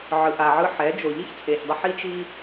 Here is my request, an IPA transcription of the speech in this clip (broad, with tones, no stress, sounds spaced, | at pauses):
ʕ ɯ˧ ʔ a˨ ʕ ɯ˧ ħ ɛ˨˦ d͡ʒ o˨ ʎ i˦ ç t͡sʼ e˨ ç dˤ ɯ˦ ħ i˦ t͡ʃ i˦